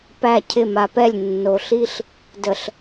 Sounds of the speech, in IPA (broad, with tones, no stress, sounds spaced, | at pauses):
p æ˦˨ cʰ ɪ˦˨ m a˨ p ɛ˦˨ lʲ nː o˨ ɬ i˦ ɬ | d ə˨ ɬ